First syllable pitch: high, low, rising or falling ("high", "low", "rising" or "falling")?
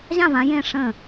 falling